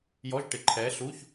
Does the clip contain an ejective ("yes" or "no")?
no